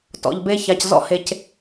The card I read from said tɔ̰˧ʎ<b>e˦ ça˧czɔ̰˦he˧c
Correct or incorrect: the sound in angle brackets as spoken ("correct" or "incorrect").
correct